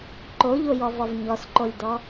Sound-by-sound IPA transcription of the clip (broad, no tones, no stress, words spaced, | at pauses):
ǃoʎojɔvɔv ɲɔsǃolʲdɔ